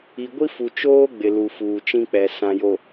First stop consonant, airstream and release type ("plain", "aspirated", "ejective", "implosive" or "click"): plain